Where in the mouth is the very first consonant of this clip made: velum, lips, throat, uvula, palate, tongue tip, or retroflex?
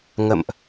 velum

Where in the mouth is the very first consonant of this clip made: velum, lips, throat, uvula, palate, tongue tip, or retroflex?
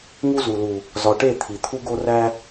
velum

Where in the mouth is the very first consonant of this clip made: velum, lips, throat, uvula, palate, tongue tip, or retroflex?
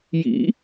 palate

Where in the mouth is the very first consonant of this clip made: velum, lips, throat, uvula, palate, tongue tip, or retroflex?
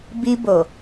lips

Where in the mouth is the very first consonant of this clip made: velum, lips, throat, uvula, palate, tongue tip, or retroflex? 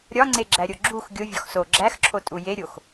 tongue tip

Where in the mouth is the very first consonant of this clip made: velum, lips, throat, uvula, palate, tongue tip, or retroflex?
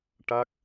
retroflex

